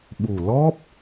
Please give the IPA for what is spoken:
ɓ u˨˩ l ɔ˦˥ p̚

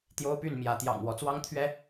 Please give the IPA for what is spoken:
t̪ j o˦ ʊ̯ p y˥˨ n m j ä˨˦ t̪ j ɑ̰˨˩ ŋ w ɔ˨˦ t͡s w ɑ˦ ŋ t̪ʰ ɥ ɛ˦

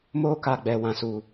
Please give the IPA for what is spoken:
m oː˦ k a˨ ɡ͡b ɛ˨ w ã˨ s uː˨

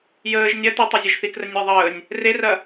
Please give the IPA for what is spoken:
j əː ʒ nʲ ɐ t i tˤ ɐ zʲ ɐ ʒ θ i k r ə nʲ e ðˤ əː nʲ | r e r ɐ

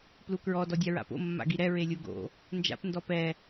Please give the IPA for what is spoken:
p l u k ɹ ɔ d ɔ dʲ a ɹ a̰ p o̰ mː a̰ ɡ i ɾ ɛ ɹ e lʲ u ɡ o̰ | n d͡ʒ a̰ p n d ɔ p ɛ

